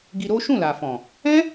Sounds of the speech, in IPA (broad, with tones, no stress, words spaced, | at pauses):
ɡi˧ɾo˦ ʃũ˦˨la˨fɔ̃˨ | ɛ̃˦